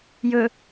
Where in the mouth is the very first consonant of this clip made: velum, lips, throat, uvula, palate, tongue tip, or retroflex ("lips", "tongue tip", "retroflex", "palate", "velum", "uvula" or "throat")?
palate